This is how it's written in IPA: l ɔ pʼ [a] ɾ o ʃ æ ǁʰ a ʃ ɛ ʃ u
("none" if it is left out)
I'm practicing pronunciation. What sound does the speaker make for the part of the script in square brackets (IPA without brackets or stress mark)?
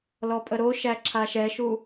ə